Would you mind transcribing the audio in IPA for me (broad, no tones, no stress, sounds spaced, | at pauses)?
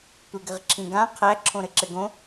tʷ e ɡ ɘ ʁ ǁʰ ĩ ɡ ã qʰ æ ǁʰ õ ɾ ɘ ǁ ɘ ɡ õ